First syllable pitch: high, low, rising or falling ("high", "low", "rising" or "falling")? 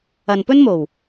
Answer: low